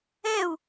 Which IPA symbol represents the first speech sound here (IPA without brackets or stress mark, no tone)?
ɛ